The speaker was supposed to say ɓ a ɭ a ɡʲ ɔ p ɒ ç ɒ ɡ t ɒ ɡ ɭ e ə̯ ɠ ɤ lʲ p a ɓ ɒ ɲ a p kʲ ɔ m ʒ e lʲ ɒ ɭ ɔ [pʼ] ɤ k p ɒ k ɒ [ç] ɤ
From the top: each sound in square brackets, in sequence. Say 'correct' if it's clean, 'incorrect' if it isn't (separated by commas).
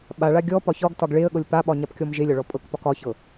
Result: correct, correct